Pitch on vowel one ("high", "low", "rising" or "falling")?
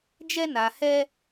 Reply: high